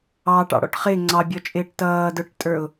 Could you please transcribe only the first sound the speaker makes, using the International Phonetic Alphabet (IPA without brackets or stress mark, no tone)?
ɑː